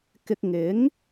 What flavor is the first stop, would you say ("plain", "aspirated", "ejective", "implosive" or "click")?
plain